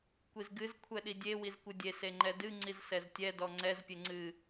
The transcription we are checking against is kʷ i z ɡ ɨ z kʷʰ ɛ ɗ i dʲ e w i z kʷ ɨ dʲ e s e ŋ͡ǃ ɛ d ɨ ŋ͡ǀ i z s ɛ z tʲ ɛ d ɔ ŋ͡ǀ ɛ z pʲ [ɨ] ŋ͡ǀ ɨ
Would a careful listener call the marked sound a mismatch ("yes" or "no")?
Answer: yes